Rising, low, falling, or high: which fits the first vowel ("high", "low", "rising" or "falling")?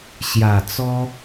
low